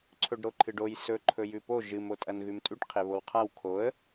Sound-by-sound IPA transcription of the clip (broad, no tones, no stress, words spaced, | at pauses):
ǀʰɵɖɾoǃʰɨɖoj sɵ ǃʰɵjʉpo ʒɨm otʼɐnɣʉmtʼʉʈ qʰeβowqʰaw kʰoə̯